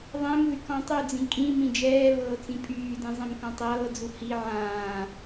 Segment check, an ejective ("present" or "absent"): present